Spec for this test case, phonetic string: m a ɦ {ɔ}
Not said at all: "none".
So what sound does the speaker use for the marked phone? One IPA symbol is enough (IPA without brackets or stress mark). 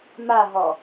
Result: ɔ